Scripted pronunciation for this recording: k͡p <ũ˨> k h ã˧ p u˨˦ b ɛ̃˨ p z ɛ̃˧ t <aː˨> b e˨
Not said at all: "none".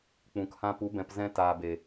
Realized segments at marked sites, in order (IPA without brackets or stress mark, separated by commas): ũ˨, aː˨